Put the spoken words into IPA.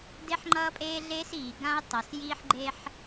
d e˦ ħ ŋ͡ǃ ʌː˦ pʼ eː˦ ɮ eː˦ s iː˨ ɡ ã˦ ʊ̯ tˤ ʌ˨ s j iː˦ ħ ɡ͡ǃ e˦ ħ

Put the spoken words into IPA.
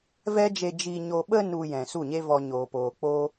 v ɛ˦ d͡ʒ e˧ d͡ʒ i˨ ɲ o˨ ɓ ə˧ n u˨ j ɛ̃˨ s u˦˨ ɲ e˦ v ɔ˧ ɲ oː˨ p oː˨ k͡p oː˦

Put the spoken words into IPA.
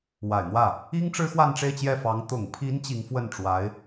w a˨˩ ɪ̯ n̪ w ä˥˩ | i˥ ŋ ʈ͡ʂ ɻ̩˥ x w a˥˧ n ʈ͡ʂ e˥˧ ɪ̯ t͡ɕ j ɛ˥˩ f ɑ˧˥ ŋ t̪ ʊ˨˩ ŋ pʰ i˧˥ n t͡ɕ i˧˥ ŋ f w ə˥˩ n ʈ͡ʂ w a˧˥ ɪ̯

